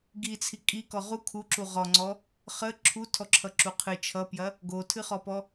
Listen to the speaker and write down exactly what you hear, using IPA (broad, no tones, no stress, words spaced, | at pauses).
ɡit͡sʰi kʼikɔ ʁu kʰuǁu ʁɔŋ͡ǀɔ | χə ǁʰutʰɔǁʰʌǁu qʰɨ t͡ʃʰʌpjɐ | ɡotʰɨχɔpɔ